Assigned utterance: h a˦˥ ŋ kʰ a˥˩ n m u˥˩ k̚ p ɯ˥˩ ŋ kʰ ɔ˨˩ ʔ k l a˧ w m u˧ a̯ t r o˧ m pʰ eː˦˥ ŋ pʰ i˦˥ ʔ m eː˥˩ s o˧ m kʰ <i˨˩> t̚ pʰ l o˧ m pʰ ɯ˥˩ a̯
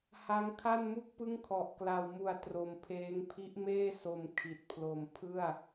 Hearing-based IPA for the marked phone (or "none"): i˨˩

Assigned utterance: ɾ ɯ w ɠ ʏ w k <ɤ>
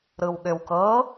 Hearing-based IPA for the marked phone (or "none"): ɤ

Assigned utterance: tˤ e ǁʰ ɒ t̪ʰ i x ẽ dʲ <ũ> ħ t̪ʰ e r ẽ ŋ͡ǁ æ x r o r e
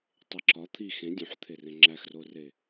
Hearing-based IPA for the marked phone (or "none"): ũ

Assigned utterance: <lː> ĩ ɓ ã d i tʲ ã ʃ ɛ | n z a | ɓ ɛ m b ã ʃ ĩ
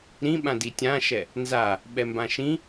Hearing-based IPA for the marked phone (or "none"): ɾ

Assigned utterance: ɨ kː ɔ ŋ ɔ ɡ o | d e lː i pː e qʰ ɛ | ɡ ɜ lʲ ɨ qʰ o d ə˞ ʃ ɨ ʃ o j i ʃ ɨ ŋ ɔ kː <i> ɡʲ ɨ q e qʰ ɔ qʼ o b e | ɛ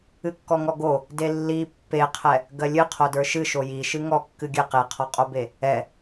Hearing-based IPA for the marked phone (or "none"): ɨ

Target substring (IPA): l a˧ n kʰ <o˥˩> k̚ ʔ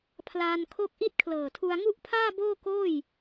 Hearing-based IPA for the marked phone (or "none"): o˥˩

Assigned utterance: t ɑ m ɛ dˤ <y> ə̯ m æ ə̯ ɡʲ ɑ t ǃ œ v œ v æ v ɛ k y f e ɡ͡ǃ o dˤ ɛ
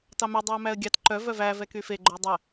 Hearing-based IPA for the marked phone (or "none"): y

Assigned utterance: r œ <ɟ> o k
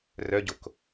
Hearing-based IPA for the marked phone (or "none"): ɟ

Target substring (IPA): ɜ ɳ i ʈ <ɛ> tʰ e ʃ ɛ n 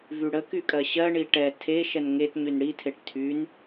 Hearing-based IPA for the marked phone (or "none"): ɛ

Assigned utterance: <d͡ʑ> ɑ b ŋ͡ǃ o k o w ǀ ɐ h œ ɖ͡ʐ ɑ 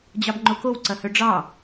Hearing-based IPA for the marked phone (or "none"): d͡ʑ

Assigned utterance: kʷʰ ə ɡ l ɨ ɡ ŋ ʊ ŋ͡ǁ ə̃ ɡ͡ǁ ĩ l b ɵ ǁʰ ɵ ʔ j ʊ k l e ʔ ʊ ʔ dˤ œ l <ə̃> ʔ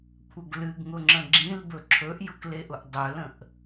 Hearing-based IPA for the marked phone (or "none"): ə̃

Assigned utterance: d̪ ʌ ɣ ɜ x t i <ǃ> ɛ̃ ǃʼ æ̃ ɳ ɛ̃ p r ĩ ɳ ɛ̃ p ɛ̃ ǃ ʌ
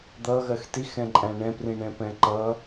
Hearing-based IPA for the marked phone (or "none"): x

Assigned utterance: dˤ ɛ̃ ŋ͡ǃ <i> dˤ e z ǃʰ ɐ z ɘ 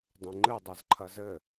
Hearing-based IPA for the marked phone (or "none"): ɨ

